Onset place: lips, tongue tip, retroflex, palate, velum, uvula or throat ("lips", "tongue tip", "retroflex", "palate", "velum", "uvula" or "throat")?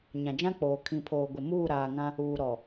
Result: palate